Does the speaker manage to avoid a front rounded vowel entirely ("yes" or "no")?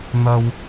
yes